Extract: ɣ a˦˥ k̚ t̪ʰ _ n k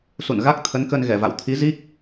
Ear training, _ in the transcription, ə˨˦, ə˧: ə˨˦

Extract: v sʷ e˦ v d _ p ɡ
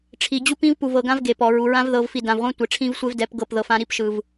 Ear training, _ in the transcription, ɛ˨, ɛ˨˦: ɛ˨˦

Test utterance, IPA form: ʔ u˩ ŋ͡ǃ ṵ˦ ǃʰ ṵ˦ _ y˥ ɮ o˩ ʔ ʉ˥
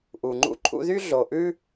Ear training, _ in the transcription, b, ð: ð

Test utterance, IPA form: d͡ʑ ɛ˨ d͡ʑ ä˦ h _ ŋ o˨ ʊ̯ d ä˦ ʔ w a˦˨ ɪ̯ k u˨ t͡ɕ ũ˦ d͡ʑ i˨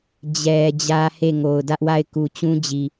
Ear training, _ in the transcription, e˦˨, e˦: e˦˨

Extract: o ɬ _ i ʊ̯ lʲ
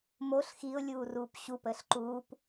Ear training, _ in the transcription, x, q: x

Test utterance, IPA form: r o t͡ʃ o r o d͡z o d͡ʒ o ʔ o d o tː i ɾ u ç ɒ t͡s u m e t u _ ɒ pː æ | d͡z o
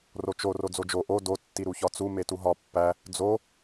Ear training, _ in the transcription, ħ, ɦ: ɦ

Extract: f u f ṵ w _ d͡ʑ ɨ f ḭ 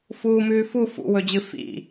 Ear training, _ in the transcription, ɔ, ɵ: ɵ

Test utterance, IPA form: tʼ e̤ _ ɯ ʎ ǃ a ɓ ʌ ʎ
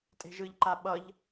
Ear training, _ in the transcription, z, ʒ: ʒ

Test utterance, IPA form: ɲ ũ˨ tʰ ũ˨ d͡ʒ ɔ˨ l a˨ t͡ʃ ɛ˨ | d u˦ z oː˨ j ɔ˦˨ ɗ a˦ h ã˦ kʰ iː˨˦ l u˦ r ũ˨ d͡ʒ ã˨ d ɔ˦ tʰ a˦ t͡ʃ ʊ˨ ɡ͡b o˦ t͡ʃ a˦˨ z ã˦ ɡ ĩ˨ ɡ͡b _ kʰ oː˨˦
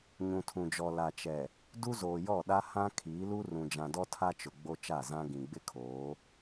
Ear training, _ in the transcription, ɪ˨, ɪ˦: ɪ˦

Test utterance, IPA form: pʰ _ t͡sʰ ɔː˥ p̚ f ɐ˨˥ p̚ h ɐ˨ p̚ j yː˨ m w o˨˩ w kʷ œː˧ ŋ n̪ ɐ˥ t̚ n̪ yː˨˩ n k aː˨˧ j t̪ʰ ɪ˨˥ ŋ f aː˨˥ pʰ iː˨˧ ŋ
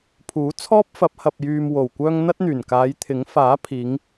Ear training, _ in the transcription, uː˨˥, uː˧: uː˨˥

